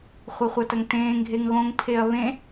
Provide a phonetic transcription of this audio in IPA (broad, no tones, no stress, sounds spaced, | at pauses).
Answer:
χʷ ɐ χʷ ɐ t ɐ ŋ t ẽː ŋ ɡʱ e ŋ ɣ õ ŋ pʰ e ɐ̯ β ẽ